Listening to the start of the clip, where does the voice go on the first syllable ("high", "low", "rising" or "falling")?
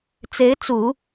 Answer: rising